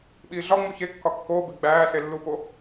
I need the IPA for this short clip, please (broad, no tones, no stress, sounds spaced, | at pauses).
ɓ iː ɮ ɒ ŋ͡m u ç e kː ɒ kː oː b e ɡ͡b æː s e lː u p o